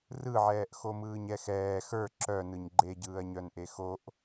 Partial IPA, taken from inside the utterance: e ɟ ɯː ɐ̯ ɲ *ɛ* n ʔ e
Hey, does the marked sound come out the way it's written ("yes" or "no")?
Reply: no